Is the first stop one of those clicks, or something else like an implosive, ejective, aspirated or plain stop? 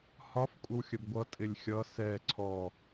ejective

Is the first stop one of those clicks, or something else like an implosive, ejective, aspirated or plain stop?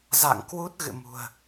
plain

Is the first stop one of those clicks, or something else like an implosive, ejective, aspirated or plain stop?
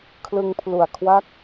aspirated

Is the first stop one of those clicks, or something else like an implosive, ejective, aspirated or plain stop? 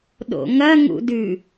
implosive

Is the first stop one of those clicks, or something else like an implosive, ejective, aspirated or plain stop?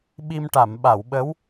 implosive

